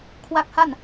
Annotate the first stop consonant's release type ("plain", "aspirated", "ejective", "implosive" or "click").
aspirated